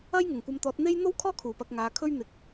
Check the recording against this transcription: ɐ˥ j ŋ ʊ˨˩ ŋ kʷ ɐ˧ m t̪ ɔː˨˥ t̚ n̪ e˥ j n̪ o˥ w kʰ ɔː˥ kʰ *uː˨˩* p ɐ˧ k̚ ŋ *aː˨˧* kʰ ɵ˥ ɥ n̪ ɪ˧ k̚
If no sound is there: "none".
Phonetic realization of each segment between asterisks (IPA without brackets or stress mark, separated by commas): uː˨˩, aː˨˧